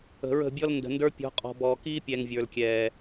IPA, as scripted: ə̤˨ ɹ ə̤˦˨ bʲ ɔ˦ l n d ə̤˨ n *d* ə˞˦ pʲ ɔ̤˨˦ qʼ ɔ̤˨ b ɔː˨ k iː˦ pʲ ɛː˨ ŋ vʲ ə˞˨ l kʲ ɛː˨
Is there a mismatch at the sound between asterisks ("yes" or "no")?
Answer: no